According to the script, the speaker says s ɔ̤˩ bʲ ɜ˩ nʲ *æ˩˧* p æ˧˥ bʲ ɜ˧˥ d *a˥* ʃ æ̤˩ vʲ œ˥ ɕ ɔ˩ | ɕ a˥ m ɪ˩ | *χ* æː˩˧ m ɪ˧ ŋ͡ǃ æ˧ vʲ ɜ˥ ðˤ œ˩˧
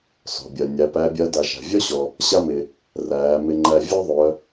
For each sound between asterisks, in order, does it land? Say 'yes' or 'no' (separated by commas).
yes, no, no